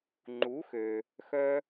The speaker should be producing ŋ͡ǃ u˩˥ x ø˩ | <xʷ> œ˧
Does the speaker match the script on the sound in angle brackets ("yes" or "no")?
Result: no